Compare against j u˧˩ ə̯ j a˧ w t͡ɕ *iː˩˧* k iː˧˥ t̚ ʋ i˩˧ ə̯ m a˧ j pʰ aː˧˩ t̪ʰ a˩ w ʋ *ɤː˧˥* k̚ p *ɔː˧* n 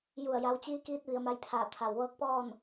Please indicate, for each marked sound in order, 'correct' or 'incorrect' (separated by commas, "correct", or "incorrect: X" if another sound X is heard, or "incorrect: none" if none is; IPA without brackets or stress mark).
incorrect: iː˧˥, correct, incorrect: ɔː˥˨